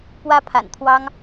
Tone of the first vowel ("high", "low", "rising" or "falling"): high